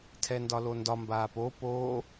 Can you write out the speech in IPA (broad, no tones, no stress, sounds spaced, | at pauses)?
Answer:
tʰ ɛ n d ɒ l o n d ɒ m b aː p o p oː